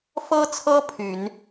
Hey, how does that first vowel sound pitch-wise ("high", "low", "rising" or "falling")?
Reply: high